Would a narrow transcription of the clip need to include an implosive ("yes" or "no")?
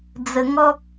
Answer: no